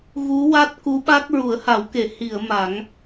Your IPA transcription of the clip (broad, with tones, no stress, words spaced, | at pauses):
ɣu˧˥wa˦˥t̚ ku˧˥ɓa˦˥k̚ ɹu˨˩˦ə̯ha˨˩˦wke˨˩˨ hi˨˩˨ə̯ ma˨˩˦ŋ